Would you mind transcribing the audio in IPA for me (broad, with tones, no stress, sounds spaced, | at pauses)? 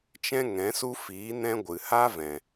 t͡ʃ ɛ̃˦ ŋ ɛ̃˨˦ s u˦ f iː˨˦ n ɛ̃˦ ɡʷ ɨ˨ h a˦ v ɛ̃˨